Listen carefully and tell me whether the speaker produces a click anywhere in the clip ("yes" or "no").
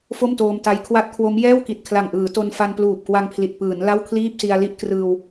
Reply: no